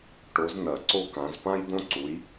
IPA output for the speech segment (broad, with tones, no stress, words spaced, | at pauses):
ʈo˨˦z nɐ˨˩˦ǀo˥kã˨˦z pã˥jd̪õ˥ǀu˨˦j